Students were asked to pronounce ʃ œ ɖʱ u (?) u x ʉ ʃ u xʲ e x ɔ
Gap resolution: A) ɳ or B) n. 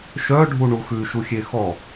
A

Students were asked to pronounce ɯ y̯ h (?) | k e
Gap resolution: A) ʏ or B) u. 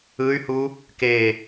B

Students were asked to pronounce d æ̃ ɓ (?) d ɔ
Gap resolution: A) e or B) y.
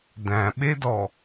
A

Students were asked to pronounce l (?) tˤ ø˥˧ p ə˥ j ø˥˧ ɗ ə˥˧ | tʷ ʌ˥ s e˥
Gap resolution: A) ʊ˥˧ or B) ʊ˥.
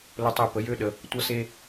B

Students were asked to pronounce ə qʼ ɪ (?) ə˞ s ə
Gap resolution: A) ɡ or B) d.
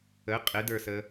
B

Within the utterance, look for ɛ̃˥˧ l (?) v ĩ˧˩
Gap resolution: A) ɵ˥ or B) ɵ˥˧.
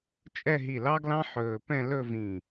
B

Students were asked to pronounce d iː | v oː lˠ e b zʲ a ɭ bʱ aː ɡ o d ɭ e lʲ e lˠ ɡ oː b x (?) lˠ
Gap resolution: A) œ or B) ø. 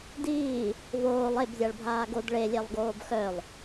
A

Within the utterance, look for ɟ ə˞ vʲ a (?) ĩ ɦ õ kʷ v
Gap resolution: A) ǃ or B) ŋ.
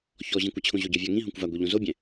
B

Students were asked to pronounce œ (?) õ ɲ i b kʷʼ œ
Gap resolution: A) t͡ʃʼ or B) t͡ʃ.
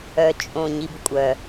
A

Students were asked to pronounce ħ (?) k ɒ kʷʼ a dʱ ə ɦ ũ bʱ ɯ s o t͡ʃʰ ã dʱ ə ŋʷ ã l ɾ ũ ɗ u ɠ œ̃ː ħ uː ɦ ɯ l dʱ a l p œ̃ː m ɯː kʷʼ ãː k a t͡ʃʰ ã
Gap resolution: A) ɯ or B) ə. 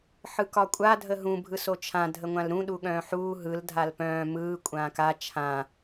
A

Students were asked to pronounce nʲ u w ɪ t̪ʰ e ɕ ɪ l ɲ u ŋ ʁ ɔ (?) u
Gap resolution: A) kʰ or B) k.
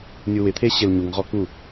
B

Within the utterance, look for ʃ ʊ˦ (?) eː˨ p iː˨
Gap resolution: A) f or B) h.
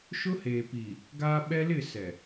B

